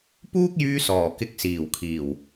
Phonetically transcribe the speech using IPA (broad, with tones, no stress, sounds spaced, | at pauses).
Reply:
p uː˥ k̚ j yː˧ s ɔː˨˩ k ɪ˧ k̚ s iː˨˩ w kʰ iː˨˩ w